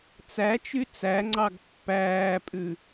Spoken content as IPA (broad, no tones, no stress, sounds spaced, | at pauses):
t͡s æ t͡ʃ y t͡s æ ŋ͡ǀ ɑ ɡ pː æː pʼ ʉ